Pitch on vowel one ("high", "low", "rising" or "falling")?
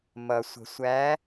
low